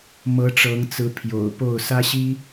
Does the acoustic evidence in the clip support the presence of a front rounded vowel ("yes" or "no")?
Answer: no